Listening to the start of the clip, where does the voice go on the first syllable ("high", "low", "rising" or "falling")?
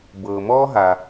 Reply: low